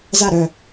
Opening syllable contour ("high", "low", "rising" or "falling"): falling